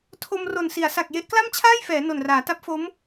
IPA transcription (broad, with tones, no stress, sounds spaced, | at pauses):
tʰ o˧ m r o˨˩ n s i˩˦ a̯ s a˨˩ k̚ j e˦˥ ʔ k l a˥˩ m t͡ɕʰ aː˥˩ j f ɛː˩˦ n o˨˩ n r aː˩˦ t a˦˥ p̚ f o˦˥ m